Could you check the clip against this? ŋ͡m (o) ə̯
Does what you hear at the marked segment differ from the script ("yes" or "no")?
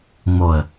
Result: no